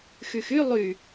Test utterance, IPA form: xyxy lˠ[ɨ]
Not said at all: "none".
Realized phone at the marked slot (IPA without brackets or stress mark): y